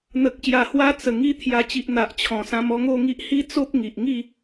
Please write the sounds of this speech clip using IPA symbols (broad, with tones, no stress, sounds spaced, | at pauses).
n̪ ə˨ k̚ ɕ j a˨˩ h w a˧ t͡s ə˨˩ ŋ i˧ t̪ʰ j a˨˩ t͡ɕ i˨ ʔ n̪ a˨ ʔ t͡ɕʰ ɔ̃˨˩ s ã˧ m ɔ˥˧ ŋ o˥˧ ŋ i˦ ʔ h i˦ t͡s o˦ p̚ ŋ i˨ ʔ ŋ i˥˧